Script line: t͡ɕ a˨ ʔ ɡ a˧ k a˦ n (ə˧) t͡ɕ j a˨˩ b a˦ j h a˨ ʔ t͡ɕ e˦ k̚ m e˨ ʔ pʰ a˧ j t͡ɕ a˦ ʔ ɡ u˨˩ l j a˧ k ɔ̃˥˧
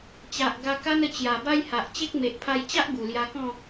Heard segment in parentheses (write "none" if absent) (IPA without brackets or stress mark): ə˧